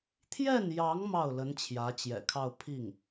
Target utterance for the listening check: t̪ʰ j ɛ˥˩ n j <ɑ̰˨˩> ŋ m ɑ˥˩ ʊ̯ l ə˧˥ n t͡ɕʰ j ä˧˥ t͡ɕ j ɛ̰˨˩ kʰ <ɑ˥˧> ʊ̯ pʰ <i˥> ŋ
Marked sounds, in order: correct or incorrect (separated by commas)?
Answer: incorrect, correct, incorrect